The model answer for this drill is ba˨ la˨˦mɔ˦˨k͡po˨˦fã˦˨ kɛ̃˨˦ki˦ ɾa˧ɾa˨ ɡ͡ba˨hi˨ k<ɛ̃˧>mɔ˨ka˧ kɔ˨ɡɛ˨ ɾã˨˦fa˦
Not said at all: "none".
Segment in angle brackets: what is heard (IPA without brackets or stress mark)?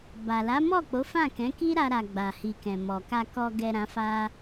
ɛ̃˨